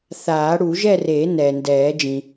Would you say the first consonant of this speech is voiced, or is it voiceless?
voiceless